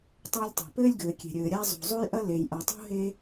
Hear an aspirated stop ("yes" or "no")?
no